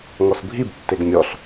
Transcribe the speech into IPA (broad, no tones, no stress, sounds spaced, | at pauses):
ŋ ɔ s bʱ i b tː e ɡ mʲ ɔ ɬ